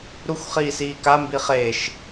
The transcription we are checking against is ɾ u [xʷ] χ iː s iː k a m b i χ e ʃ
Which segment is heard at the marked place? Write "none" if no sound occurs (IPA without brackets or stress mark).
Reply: xʷ